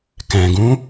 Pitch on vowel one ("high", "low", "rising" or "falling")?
low